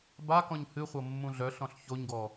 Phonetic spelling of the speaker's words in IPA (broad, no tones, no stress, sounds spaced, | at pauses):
b a k ɔ̃ ɲ h ɨ χʷ ɤ mː ũ ɮ œ ɬ ɔ̃ ɬ ç o ɲ ɡ ɔ